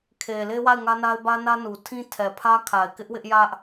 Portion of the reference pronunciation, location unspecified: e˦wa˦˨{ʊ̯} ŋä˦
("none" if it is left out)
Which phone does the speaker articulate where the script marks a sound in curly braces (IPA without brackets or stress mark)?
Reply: ɪ̯